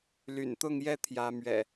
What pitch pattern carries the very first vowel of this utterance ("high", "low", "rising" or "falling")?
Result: low